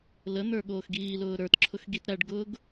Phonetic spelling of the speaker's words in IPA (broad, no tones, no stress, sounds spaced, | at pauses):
l ə n̪ ə˞ ɠ oː x ɡ iː l ʊː ɾ ə˞ t ǁʰ ʊ x ɡ i t ɾ æ ɖ ɡ ʊː ɡ